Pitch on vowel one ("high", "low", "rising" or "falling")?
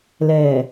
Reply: low